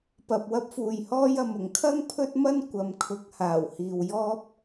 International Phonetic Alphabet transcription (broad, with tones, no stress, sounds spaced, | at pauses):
p ɐ˨ p̚ w ɐ˥ p̚ f uː˨ j h ɔː˥ j ɐ˨ m ʊ˨˩ ŋ kʰ ɐ˥ ŋ pʰ ɵ˥ t̚ m ɐ˥ n kʷ ɐ˨˧ m kʰ ʊ˨˥ k̚ h aː˨˩ w h iː˨ w j ɔː˥ p̚